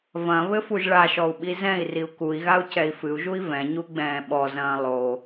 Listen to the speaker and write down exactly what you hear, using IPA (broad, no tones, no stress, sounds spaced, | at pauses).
v ɐ̃ β ɘ f u ʒ ɭ a ʃ ɔ u̯ ɓ i z ɛ̃ i̯ r i u̯ k u i̯ ɣ a u̯ c ɛ i̯ f ɨ u̯ ʒ u i̯ v ɛ̃ ɲ u ɡ͡b ɛ̃ː ɓ ɔ z ɐ̃ː lˠ o